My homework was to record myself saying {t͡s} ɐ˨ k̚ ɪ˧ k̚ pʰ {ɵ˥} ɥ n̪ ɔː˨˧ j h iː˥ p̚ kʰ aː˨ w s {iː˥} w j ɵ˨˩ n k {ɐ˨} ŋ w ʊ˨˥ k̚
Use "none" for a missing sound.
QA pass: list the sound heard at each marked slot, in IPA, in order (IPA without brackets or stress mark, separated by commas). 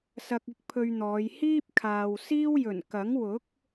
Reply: s, ɵ˧, iː˥, ɐ˨˥